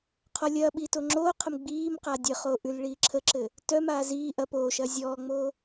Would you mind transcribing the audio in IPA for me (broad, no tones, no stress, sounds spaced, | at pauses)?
qʰ ɔ lʲ ɐː ɓ iː t o ŋ͡ǁ oː qʰ ə m ɡ͡b iː m q a dʲ ə χ o ʔ ʉ l ɭ iː ǁʰ ə ǁ ɘ | t œ m aː z iː ʔ ɐ p oː ʃ ɐː zʲ ɔː ŋ͡m oː